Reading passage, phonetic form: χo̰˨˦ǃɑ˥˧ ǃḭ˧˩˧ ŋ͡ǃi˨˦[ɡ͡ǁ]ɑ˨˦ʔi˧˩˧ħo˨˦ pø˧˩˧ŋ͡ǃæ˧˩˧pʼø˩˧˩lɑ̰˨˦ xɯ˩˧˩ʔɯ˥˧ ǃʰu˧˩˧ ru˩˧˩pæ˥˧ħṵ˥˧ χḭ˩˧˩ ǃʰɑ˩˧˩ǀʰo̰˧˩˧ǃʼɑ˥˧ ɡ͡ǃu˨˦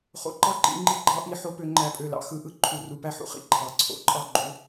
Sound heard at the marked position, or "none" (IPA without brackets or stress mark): ɡ͡ǃ